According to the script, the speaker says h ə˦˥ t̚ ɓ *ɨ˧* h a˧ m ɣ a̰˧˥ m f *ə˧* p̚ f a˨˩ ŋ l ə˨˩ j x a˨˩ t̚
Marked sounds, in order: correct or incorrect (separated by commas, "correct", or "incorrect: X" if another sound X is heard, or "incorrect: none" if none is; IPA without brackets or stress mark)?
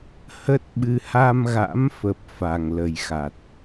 correct, incorrect: ə˨˩